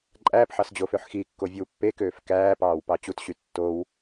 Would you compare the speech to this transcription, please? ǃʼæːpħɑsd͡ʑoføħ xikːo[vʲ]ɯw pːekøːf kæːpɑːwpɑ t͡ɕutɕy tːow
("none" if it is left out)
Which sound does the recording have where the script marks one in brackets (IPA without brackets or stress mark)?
vʲ